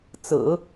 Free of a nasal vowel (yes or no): yes